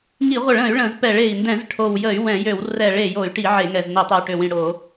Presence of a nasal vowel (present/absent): present